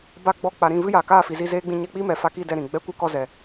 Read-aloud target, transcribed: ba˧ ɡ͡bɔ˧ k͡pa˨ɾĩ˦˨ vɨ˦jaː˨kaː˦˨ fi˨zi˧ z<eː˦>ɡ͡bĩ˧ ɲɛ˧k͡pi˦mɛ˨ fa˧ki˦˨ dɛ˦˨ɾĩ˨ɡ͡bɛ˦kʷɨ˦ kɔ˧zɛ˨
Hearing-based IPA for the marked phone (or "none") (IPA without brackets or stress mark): eː˦